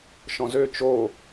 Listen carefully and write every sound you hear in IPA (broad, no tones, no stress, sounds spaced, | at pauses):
ʃ ɔ̃ z ø t͡ʃ o